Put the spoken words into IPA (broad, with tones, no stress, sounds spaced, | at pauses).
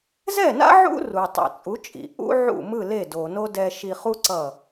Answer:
z ɛ˥˩ n a̰˥ ʕ ṵ˥ r u˩ tˤ ḭ˩ t͡sʼ u˩˥ t͡ʃʼ ḭ˩ ʔ ṵ˥ ʕ ṵ˥˩ m ɯ˥˩ l e˥˩ d o˩ n o˥ d ɛ˧ ʃ i˧ χ u˥ ǀ ʌ˥˩